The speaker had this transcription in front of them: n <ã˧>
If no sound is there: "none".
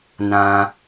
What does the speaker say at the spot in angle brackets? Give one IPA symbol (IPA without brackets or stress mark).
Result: ã˧